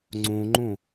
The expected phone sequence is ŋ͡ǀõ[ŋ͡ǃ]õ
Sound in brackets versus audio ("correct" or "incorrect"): correct